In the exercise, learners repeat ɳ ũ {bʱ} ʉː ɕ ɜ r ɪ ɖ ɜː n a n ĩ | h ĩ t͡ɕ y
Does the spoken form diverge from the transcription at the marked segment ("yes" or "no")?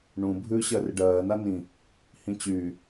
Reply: no